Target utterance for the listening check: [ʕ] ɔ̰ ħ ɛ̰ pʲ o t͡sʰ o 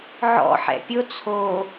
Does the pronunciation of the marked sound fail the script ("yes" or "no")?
no